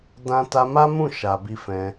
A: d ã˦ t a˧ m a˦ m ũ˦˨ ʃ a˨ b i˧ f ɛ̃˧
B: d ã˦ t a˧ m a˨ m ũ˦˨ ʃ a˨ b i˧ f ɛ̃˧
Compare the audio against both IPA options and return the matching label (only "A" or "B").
A